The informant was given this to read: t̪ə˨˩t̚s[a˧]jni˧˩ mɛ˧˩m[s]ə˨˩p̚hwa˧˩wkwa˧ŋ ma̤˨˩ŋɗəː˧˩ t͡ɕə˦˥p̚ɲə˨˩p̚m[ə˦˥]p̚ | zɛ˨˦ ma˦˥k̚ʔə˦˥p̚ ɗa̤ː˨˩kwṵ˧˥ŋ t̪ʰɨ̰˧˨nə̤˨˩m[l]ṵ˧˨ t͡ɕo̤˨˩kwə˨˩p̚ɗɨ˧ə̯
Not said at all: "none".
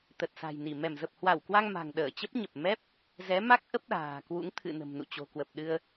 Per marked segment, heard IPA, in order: a̤˨˩, z, ɛ˦˥, n

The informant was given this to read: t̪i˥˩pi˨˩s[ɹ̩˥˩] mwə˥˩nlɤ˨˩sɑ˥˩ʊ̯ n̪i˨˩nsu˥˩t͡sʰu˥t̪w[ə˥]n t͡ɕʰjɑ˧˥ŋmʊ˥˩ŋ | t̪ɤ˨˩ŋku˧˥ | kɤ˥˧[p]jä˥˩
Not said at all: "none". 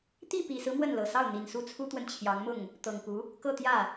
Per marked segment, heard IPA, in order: ɹ̩˦, ə˨, t̪

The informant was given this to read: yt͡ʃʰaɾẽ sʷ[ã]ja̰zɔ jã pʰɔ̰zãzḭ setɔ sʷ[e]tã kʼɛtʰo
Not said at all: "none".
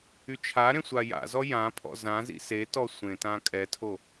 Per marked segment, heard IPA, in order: a, ẽ

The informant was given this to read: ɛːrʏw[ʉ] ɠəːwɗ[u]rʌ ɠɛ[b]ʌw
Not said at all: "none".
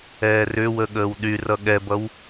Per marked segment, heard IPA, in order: ə, y, b

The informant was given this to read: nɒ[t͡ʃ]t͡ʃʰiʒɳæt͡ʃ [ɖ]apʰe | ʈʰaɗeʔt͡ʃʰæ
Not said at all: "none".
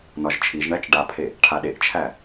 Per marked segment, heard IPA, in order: ʒ, ɖ

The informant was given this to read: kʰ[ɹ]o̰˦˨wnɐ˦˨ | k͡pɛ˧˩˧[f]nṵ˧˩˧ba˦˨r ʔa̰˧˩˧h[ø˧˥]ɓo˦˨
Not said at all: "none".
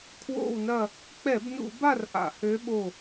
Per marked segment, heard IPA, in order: w, b, ø˧˥

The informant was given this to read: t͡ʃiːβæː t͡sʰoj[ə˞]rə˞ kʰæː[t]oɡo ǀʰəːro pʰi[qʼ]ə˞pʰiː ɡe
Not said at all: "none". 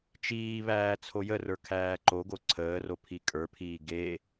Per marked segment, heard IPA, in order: ə, ǃ, kʼ

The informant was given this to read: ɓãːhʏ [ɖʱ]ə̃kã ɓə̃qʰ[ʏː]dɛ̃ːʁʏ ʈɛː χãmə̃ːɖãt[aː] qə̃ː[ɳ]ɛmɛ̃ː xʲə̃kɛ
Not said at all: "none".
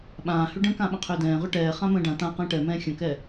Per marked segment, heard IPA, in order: ɖ, ʏː, ãː, ʈ

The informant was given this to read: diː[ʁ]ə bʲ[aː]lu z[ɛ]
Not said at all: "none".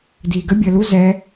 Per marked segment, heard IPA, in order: ɡ, əː, ɛ

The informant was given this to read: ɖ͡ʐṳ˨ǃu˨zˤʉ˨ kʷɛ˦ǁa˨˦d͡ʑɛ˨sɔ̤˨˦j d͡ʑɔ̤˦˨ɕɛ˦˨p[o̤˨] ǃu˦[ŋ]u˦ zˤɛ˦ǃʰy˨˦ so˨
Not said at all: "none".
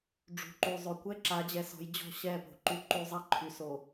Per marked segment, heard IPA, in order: o̤˨, ǃ

